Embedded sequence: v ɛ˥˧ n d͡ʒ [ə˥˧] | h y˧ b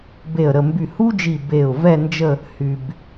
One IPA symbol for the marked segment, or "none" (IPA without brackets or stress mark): ə˥˧